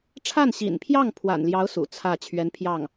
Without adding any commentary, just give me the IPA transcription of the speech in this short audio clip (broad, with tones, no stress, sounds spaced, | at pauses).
ʈ͡ʂʰ a˥˩ n ɕ ḭ˨˩ n pʰ j ɑ˥˩ ŋ pʰ w a̰˨˩ n l j ɑ˧˥ ʊ̯ s ṵ˨˩ t͡sʰ ä˥˩ t͡ɕʰ ɥ ɛ˧˥ n pʰ j ɑ˥˩ ŋ